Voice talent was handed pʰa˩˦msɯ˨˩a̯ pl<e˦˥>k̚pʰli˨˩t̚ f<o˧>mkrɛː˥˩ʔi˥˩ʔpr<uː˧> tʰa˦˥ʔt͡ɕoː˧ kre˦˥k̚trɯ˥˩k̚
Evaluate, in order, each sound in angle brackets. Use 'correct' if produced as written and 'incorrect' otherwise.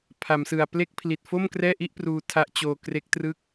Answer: correct, incorrect: o˥˩, correct

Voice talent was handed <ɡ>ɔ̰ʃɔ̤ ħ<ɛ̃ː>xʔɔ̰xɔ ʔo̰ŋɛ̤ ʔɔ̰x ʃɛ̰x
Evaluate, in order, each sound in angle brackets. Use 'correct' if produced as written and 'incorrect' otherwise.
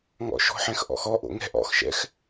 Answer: incorrect: ŋ, incorrect: ɛ̃

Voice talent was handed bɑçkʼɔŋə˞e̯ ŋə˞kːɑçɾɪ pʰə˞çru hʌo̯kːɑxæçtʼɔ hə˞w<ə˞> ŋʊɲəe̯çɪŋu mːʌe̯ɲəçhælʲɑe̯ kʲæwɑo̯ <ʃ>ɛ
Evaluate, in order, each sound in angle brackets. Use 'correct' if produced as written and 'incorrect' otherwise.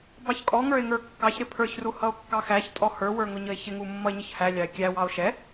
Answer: correct, correct

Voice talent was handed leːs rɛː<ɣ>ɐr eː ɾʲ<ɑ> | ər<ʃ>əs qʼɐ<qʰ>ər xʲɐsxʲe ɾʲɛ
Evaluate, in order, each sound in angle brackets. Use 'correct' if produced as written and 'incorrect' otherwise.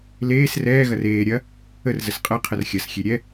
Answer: correct, incorrect: ɐ, incorrect: z, correct

